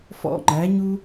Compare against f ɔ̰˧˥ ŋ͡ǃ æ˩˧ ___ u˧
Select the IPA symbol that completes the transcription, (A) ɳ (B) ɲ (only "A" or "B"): B